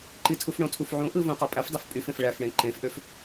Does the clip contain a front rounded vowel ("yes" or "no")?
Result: yes